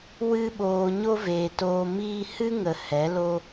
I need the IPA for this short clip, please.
w ɨ˧ ɓ oː˨ ɲ o˦ v eː˨ t oː˧ m iː˦ h ɨ˦ ŋ ə˨ h ɛ˨˦ l o˦

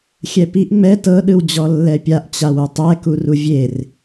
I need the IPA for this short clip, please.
xʲ ɛ p i ʔ ŋ͡m ɛ t ɤ ɗ ɯ w d͡ʑ ɔ lː ɛ pʲ a ʔ t͡ɕ a w u tˤ ɛ k u r u vʲ e r

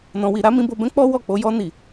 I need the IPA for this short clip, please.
n ɔ̃˧ w i˧ ɾ a˦ m ĩ˧ b o˧ b ɛ̃˦ k͡p ɔ˦ w ɔ˦˨ k͡p o˧ j ɔ˧ n i˨

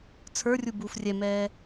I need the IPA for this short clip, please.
t͡sʰ ə˞ rʲ u b uː f rʲ ɛ m ɛː

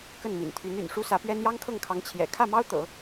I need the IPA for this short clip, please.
k ə˥˩ n m ḭ˨˩ n t̪ʰ y˧˥ n y̰˨˩ n ʂ u˥ s ä˧˥ p ɥ ɛ˥ n j ɑ˥ ŋ kʰ ɤ˥˩ ŋ kʰ ɑ˧˥ ŋ t͡ɕʰ j ɛ̰˨˩ kʰ ä˥˩ m ɑ˥ ʊ̯ t̪ ɤ̰˨˩˦

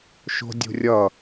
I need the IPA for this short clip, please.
ʃ o̤ dʲ ṳ rʲ ʌ

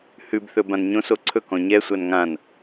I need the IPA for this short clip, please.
h ʉ b θ ɵ b ã n ɲ õ s o ǀʰ ɵ k ɔ̃ ɲ ɛ sʷ a n ŋ ã n

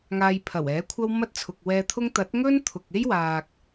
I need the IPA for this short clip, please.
ŋ aː˧ j pʰ ɐ˨˩ w ɛː˨˥ kʷʰ ɐ˥ w m ɐ˥ t̚ t͡sʰ ʊ˨ k̚ w ɛː˧ t̪ʰ ʊ˥ ŋ t̪ ɐ˨˥ t̚ ŋ ɵ˥ n t̪ʰ ʊ˨ k̚ e˥ j w aː˨ k̚

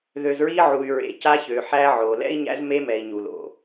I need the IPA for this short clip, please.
ð ø˨ z ɹ i˦ ʕ u˨ y̯ ɹ ḛ˨ c a˦ ç ø˨ ħ æ˦ ʕ o˨ l ɛ̰˦ i̯ ɲ æ̰˦ z m e˦ m ɛ˨ i̯ ɲ u˨ l o̰˨

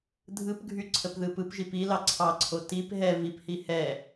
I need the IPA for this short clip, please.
dʱ ɯ p ɡʱ y ǀʰ ə p ð ɯ p ɯ p ʒ i p i l ɑ ǀʰ ɑ ǀʰ o t i p ɦ ɛ v i p h i h ɛ

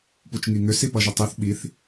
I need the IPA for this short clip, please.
p u t͡ʃ ŋ i ŋ ʏ s i p ʌ ʒ ʏ tˤ i θ ɓ i θ

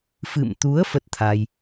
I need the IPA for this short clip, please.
f ɨ̰˧˨ m t̪ u˨˦ ə̯ f ə˦˥ t̚ t̪ʰ a˧ j

